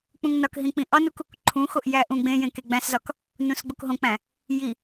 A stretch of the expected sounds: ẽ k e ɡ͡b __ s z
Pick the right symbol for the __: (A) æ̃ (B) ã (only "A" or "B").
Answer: A